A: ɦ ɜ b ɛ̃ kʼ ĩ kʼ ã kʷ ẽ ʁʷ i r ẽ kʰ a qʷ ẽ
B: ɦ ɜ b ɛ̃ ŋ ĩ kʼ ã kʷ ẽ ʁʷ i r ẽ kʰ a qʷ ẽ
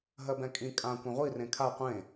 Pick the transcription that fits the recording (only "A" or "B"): A